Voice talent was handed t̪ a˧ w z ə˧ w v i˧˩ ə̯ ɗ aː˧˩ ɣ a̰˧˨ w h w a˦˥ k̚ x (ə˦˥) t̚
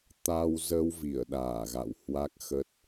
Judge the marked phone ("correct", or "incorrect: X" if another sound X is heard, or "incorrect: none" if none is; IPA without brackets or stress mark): correct